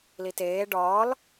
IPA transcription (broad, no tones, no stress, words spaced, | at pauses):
liteː ɖɒːl